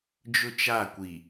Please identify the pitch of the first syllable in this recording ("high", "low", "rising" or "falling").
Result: high